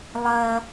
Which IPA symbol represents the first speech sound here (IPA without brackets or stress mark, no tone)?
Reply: lˠ